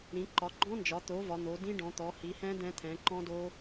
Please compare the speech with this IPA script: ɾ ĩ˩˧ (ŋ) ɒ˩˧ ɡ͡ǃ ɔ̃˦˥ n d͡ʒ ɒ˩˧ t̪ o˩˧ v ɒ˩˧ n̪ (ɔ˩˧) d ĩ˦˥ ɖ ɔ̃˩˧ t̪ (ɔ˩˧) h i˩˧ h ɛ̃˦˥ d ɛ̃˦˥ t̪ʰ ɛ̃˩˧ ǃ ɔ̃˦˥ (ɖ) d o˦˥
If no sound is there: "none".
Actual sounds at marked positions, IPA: ǃ, o˩˧, ɔ˩˧, none

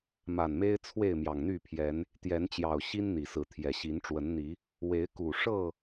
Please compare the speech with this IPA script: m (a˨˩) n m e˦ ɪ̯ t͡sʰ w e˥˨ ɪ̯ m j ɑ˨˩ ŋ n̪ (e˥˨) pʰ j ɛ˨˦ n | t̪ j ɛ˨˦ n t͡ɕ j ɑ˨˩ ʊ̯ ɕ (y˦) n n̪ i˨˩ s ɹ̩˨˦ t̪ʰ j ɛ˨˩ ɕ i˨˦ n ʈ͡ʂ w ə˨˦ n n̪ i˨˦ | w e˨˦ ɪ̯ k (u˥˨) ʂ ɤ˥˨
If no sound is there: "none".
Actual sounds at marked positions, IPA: a˨˩, y˥˨, i˦, u˨˩

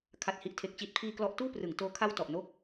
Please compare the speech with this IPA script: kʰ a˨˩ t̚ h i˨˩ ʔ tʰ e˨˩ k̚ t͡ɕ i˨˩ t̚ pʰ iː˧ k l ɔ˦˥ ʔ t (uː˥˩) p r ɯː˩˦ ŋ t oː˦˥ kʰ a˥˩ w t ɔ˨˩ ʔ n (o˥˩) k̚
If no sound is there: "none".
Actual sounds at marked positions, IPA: uː˥˩, o˥˩

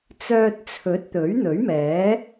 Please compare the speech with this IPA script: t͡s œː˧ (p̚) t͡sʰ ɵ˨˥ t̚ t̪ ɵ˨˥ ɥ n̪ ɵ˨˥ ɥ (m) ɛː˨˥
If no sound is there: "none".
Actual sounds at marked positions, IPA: t̚, m

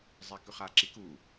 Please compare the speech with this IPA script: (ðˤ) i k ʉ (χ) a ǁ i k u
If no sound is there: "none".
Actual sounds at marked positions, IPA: zˤ, χ

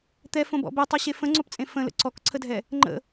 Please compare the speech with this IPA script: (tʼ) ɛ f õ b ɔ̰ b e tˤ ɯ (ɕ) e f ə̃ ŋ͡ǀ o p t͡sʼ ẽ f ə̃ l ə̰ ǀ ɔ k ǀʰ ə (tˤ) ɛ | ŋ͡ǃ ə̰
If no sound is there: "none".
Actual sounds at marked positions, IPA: t̪, ɕ, dʱ

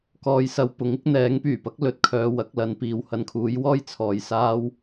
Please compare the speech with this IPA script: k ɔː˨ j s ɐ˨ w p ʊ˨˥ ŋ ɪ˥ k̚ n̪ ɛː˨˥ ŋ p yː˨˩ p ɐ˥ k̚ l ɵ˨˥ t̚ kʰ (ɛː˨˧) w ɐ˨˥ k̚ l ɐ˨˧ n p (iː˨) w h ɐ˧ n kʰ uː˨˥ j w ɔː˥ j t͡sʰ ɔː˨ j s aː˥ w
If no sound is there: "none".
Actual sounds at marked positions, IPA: œː˨˧, iː˨

